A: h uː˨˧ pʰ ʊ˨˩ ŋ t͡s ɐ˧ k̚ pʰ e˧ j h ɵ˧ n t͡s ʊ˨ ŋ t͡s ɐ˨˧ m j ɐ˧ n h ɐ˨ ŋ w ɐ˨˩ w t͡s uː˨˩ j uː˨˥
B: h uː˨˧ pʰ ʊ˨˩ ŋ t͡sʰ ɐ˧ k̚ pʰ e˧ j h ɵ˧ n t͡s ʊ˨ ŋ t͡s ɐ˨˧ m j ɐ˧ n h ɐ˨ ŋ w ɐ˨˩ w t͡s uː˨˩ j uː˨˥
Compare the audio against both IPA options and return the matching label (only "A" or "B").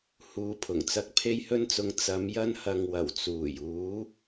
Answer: A